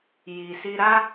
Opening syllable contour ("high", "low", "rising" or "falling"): low